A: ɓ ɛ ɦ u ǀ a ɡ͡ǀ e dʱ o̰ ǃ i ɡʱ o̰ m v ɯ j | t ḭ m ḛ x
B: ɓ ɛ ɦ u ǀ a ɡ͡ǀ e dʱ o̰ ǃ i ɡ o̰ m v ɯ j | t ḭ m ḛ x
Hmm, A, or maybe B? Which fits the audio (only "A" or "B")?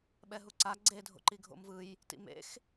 A